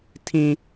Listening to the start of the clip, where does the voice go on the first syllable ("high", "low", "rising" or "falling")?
low